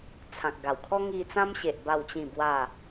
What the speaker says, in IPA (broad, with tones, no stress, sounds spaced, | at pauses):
t͡sʰ ã˨ k̚ ɡ a˨˩ w kʰ ɔ˦ ŋ i˧ t͡s ã˦ m ɕ e˨ ʔ b a˥˧ w t͡ɕ ĩ˥˧ b w a˥˧